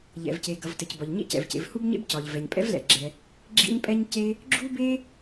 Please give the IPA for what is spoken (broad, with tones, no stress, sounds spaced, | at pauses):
ʎ ɛ̰˩ v c e˩ ɡ ʌ˩ v t ɘ˩ c b ɒ˩ ʎ ɲ ḛ˥ c ɛ̰˩ v c ḛ˩ v h u˥ b ɲ ḛ˥ b c ɒ˩ ʎ v ɛ˩ ɲ pʼ ɛ̰˥ v l ɛ̰˩ ɡ͡ǁ ɛ˩ | ɡ͡ǁ ḭ˥ ɲ pʼ ɛ˥ ɲ c e˥ | ɡ͡ǁ u˥ b e˥